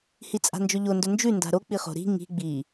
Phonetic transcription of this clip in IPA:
hit͡sʼa̤nd͡ʒɵʎo ndɵnd͡ʒʉ nda̤ɾo k͡piχo̤ ɾi̤ ŋi̤ ɡ͡bi

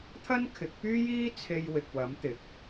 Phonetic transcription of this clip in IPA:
t̪ʰɐ˥nkʰɪ˨˥k̚pyː˥jiː˥ t͡sʰe˧jwɪ˨k̚wɐ˨˥mt̪ɪ˨˥k̚

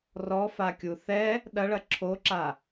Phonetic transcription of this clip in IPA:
rɔfakʲu θɛ | ɗɐɭɐ ǁʰoǁa

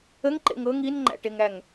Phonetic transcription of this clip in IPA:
əŋǃḛŋ ɤŋ inŋ͡ǃæ̰ʈeŋæŋ

